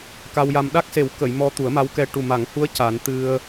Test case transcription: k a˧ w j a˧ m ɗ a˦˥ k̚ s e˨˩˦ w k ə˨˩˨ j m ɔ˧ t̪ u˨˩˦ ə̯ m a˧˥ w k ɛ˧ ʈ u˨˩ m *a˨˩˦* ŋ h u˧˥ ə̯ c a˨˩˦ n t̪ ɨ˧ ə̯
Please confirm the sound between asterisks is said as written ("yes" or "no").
yes